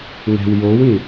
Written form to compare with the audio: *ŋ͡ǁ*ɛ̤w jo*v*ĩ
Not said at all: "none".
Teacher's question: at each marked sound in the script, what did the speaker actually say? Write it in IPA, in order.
ŋ, w

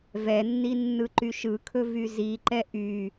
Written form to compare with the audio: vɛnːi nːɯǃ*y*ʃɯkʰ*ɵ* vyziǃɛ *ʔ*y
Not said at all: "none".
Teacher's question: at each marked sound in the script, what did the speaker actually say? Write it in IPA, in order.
y, ɵ, ʔ

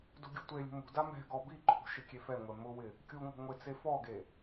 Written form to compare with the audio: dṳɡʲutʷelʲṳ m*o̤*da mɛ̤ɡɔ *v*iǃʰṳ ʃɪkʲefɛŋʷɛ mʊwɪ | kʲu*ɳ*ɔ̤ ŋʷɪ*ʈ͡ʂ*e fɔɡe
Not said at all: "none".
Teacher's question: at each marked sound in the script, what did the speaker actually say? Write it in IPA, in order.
ṳ, b, ŋ, t͡s

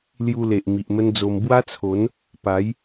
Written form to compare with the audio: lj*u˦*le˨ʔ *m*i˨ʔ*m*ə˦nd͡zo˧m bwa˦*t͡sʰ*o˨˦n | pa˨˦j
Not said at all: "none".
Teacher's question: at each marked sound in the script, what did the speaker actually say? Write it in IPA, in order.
u˧, m, m, t͡sʰ

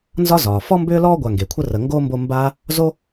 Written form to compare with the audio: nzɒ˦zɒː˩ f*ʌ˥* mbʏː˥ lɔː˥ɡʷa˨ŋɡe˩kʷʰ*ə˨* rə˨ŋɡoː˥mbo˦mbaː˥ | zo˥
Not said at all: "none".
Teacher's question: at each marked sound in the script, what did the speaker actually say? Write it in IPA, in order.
ɔ˥, ə˦

